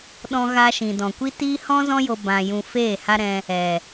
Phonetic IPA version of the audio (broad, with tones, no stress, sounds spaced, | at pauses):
ɗ ɔ̃˧ ɣ a˧ ʃ ĩ˨ d ɔ̃˨ kʷ i˦ t iː˦ h ɔ̃˦ z ɔ̃˦ j o˧ b ã˧ j ũ˧ f eː˦˨ h a˦ ɾ ɛ̃˧ | ɛ˨